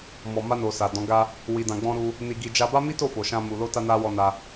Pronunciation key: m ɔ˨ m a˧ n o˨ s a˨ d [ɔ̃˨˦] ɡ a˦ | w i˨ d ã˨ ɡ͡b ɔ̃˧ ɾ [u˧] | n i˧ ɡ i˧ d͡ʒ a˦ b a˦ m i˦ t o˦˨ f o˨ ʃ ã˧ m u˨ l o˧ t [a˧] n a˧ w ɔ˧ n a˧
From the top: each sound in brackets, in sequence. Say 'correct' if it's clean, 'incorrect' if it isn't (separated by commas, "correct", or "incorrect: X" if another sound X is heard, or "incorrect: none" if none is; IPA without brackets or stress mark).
correct, correct, correct